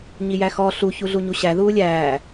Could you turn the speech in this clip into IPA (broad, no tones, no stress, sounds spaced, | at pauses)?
ɲ i j æ x ɔ ɬ u ç u ɮ u ɲ u ɕ æ ð uː lʲ æː